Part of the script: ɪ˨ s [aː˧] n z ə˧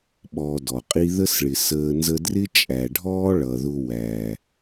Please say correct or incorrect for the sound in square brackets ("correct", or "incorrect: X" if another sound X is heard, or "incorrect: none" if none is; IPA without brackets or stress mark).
incorrect: əː˧